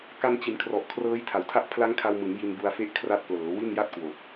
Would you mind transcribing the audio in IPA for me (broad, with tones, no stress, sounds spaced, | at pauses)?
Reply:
k a˧ n t͡ɕ i˩˦ n kʰ r ɔ˨˩ ʔ kʰ r ɤː˦˥ j tʰ a˩˦ w tʰ a˥˩ ʔ pʰ l a˦˥ ŋ kʰ a˧ w m ɯ˩˦ ŋ j i˧ n b u˧ a̯ f e˥˩ ʔ kʰ r a˦˥ t̚ p l ɤː˩˦ w i˥˩ n j a˥˩ t̚ k w o˨˩ k̚